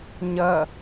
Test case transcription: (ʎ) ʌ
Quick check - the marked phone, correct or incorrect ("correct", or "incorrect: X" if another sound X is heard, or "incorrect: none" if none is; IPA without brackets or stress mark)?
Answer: incorrect: ɲ